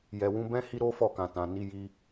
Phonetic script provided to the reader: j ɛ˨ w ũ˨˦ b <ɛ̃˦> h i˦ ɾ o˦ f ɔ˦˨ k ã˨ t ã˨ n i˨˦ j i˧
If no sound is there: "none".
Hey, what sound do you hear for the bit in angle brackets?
ɛ̃˦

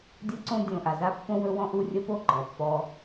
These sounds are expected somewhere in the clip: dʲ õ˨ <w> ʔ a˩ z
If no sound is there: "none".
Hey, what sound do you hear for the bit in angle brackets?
none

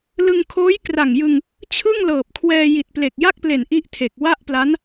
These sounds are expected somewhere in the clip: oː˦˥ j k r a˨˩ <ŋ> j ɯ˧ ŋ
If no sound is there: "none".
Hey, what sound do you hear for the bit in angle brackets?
ŋ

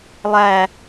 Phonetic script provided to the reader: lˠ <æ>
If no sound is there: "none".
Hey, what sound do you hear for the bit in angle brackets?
æ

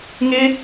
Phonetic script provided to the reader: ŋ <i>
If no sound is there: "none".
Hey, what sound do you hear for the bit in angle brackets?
e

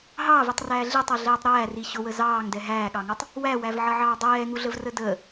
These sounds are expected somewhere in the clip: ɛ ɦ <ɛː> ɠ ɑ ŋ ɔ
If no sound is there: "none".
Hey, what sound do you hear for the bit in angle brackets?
æː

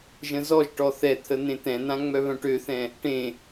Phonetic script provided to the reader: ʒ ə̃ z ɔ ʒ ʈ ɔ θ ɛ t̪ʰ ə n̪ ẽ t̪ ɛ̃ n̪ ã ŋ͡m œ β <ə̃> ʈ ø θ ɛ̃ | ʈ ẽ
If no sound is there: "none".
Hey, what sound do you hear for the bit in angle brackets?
œ̃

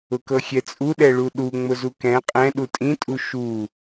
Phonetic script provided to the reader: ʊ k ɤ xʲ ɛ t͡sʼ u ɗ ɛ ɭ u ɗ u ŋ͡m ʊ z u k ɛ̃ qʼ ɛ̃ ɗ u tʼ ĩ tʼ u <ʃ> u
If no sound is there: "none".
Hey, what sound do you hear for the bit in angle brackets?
ʃ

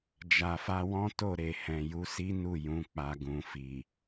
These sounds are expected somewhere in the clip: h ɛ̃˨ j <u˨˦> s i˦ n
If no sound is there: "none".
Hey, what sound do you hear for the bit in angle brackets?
u˨˦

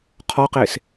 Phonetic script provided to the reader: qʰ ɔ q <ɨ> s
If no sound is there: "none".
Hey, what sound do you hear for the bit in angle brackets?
e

